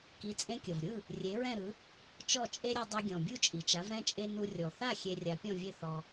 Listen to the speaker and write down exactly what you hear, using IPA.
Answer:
ki˩˥t͡sʼẽ˧kʲɤ˩vɾʲɯ˥˩ | rʲe˩˥ɹɛ̃˥˩ɾɯ˩˥ | t͡ʃɔ˥˩t͡ʃʼe˥ɾʲɛ˧ dˤe˧ɡʲɔ̃˩ bʲu˥˩t͡ʃʼi˩t͡ʃa˩˥v ɾɛ̃˥˩t͡ʃʼe˧ nu˧ rʲɔ˩θa˥˩ xʲe˧rʲa˩˥pʲɔ̃˥˩vʲe˥˩ θɔ˧

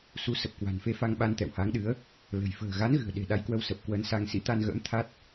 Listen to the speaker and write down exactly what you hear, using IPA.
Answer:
su˨˦sə˨˩p̚kwa̤˨˩n fe˧fa˧ŋɓa˧n t̪ɛ̰˧˨wha˨˦ŋɗɨ˨˦ə̯ | lə̤˨˩j fə̤ː˨˩ ɣa˨˦nɣɨ̤˨˩ə̯ ɗe̤˨˩ ɗa˨˦jkwə˨˦wsə˨˩p̚ kwə˨˦nsa˧ŋ sḭ˧˥t̪a˧nɣə̰ː˧˥m t̪ʰa˦˥t̚

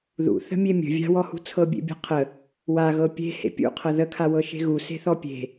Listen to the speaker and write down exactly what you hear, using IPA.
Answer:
ðṵ θə̤mʲemʲə̤ vʲa̤wɔhṳ t͡sʰɤbʲḛbʲa̤qʰə | waɣɤ pʲe̤ hḛpʲṵqʰɤ ðə kʰawɤʃe̤ɣu se̤θɔpʲe̤

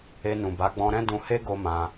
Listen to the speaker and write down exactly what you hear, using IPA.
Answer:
e˧nũ˨ ba˨˦ɡ͡bɔ̃˧ɾɛ̃˦ dũ˧he˦ɡo˧mã˧

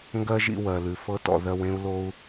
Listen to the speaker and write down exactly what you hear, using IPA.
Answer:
ŋɡɜ˦ʒḭ˧wɜ˨lʉ˨ fɤ˦tɔ̰˧ ðɜ˧w ẽ˦u̯lo˦u̯

